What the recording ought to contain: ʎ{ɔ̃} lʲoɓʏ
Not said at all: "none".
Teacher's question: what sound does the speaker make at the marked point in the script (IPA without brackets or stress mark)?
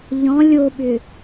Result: ɔ̃